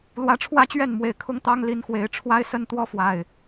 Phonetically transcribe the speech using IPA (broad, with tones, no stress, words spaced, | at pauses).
lwä˨˦ʈ͡ʂʰwä˥˨t͡ɕɥɛ˥˨nmwe˨˩ɪ̯ kʰʊ˦ŋt̪ɑ˦ŋ li˨˦nxwe˨˩ɪ̯ ʈ͡ʂʰwa˦ɪ̯sə˦n t̪wɔ˦fwa˨˩ɪ̯